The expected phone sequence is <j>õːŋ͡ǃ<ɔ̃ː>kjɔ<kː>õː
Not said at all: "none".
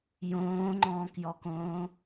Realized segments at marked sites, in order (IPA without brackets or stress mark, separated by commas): j, ɔ̃ː, k